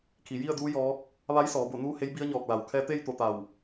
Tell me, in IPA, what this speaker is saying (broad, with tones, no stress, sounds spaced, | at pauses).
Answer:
kʰ i˩ j i˥˨ ə̯ d uː˧˥ j ɔː˧˥ k̚ | ʋ a˧˥ j s ɔː˩˧ b o˧˩ n uː˥˨ h e˧˥ j b i˧˥ ə̯ ɲ ɔː˧˩ k̚ l a˩ w kʰ ɛː˧ t̪ e˥˨ j t̪ o˧˩ t̪ a˧˩ w